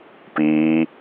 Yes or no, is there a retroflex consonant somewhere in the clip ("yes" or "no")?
no